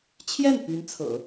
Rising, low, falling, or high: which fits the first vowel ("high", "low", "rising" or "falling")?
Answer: falling